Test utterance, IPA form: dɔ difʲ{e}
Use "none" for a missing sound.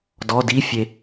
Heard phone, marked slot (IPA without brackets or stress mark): e